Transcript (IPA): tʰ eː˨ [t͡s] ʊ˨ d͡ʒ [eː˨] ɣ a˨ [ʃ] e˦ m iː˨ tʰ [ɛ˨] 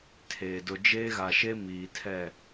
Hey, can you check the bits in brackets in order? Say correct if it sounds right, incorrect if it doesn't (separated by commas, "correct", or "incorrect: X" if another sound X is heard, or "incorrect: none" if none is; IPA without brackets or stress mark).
incorrect: d, incorrect: eː˦, correct, incorrect: ɛ˦˨